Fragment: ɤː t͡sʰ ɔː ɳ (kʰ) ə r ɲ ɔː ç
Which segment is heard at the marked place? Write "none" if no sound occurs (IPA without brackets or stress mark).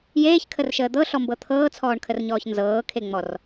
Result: kʰ